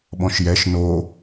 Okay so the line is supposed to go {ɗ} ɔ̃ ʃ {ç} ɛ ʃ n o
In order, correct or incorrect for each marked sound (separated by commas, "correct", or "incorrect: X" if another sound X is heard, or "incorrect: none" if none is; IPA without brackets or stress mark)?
incorrect: ɓ, incorrect: j